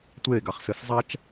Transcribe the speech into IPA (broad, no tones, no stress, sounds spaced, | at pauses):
tʷ eː ɡ a χ s ɘ s zˤ a t͡ʃ